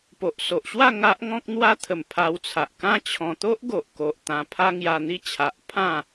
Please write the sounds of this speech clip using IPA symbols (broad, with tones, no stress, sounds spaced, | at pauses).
p o˨ ʔ s o˨ ʔ ɕ w a˥˧ ŋ a˦ ʔ ŋ ɔ̃˦ k̚ n̪ w a˦ t̪ʰ ə˨˩ m pʰ a˧ w t͡sʰ a˨ ʔ k ã˦ t͡ɕʰ ɔ̃˧ t̪ o˦ ʔ ɡ o˨ ʔ k o˨ ʔ t̪ ã˧ pʰ a˦ ŋ j a˧ n̪ i˦ t͡ɕʰ a˨ ʔ pʰ ã˥˧